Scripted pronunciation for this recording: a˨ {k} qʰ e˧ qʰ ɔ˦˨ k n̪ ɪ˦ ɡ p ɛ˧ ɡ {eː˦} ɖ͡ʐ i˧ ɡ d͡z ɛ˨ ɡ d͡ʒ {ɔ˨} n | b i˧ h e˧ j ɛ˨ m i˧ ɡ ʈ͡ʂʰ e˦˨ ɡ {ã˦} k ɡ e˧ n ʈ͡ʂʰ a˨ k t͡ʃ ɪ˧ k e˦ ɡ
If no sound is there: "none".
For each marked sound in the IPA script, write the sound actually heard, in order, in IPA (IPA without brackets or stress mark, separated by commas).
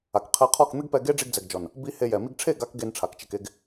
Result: k, e˦, ɔ˨, a˦